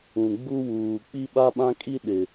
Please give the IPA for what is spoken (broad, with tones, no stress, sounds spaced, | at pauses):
ũ˨ ɡ͡b u˦ w uː˨ k͡p i˦ ɓ a˦ ɓ ã˦ kʼ i˦ ɗ ɪ˨